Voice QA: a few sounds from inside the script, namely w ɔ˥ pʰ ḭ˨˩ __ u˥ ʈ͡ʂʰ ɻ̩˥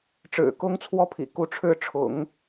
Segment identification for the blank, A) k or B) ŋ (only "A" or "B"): A